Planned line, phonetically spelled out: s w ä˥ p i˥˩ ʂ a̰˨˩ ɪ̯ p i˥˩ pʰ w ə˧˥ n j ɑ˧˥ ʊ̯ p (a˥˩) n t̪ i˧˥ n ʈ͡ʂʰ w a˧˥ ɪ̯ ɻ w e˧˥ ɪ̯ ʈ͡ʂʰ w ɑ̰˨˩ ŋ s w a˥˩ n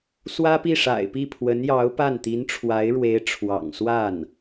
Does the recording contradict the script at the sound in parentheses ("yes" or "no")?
no